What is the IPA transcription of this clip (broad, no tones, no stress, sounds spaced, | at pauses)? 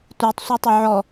tʷ i tˤ sʷ ʌ tˤ ʊ ʕ ɔ